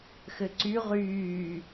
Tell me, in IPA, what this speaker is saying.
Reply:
xɘǀy ʁyː

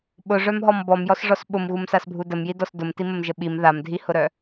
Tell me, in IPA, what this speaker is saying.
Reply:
ɓʊʐœmɦɔm bɔmjɔsʐɔs ɓʊmɣumsasbʱu dəmjidɔs dʊmtiməmʒə ɓim ðamdʱihʊɾœ

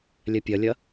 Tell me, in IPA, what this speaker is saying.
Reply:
lʲɛpʲɐlʲɐ

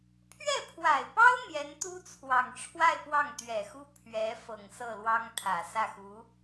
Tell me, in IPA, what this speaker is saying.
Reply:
pʰɥɛ˥˩pʰwa˨˩ɪ̯pɑ˥ʊ̯ n̪jɛ˧˥nt̪u˥t͡sʰwɑ˨˩ŋʈ͡ʂʰwa˥˧ɪ̯ pwɑ˥˩ŋt̪ɥɛ˨˩xu˥ pʰɥɛ˧˥ fɤ˨˩ŋsɤ˥˩lwɑ˥ŋ t̪ʰä˨˩sä˥˩ xu˧˥

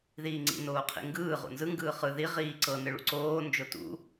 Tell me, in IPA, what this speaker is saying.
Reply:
ðiːŋ͡ǀḭ noːqʰḭŋɡɯː ʁṵnzɯ ŋɡɯːχɯ ði ʁiːǀɤ nɯɭṵǀoː nd͡ʒotṵ

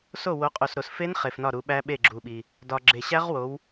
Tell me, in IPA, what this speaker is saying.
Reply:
so˦˨wo˨˦qʼo˨sɾo˨s fe˦˥n χe˨fnɒ˦˨ɾu˨˦ɓæ˦˥ ɓe˦˨ɡ͡ǁu˨ɓi˨ | dɒ˨ɡ͡ǁe˨ɕæ˦˥ʁwo˨˦w

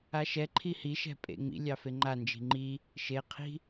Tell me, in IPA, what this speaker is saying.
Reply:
aʃɛǃʰi hiʃɛ̤ pʼḛŋ͡mḭ lʲɑfeŋ͡ǃa nd͡ʒi̤ŋ͡ǃi | ʃeqʰi̤

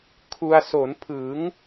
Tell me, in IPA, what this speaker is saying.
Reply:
kʰu˧a̯ so˩˦npʰɯ˩˦ŋ

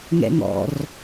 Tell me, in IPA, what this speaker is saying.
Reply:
ŋɛ̰ŋɔ̰r

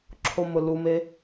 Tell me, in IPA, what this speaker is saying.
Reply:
ǁʰomʊlume

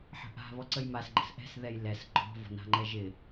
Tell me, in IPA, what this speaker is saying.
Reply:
ħə̤ʔa̤ βɔǀəjmas ɡ͡ǃə̤sʔɛ̤s ðɛjlɛs ɡ͡ǃɔ̤ vɔ̤na̤ŋ͡ǃɛʒɪ

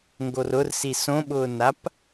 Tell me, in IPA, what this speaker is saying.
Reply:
ŋɡorʊrsi sõɓʊːnap

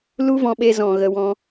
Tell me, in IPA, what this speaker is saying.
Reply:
lu˦vɔ̃˧ɓe˧ zɔ̃˨ ɣə˧wɔ̃˦

